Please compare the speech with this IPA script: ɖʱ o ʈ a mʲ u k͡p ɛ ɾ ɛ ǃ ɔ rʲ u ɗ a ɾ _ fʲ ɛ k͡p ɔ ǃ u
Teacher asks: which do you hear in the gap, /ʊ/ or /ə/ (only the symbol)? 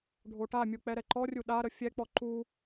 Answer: ə